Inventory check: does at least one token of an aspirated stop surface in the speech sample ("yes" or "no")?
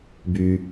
no